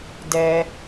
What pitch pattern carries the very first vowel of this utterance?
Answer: low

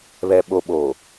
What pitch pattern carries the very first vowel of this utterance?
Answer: low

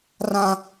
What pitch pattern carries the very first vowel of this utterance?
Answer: high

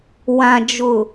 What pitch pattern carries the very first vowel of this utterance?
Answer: low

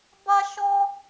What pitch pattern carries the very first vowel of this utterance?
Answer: high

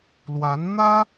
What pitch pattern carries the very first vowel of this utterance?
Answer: rising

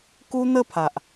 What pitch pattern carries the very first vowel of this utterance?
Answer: high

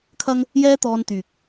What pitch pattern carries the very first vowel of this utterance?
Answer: high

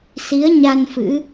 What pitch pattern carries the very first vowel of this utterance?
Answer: rising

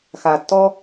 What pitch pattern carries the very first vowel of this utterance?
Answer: low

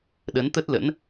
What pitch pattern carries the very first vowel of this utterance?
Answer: rising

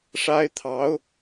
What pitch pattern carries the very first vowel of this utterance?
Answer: high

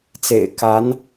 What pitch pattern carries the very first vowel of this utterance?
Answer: low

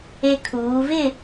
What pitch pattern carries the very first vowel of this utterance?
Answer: high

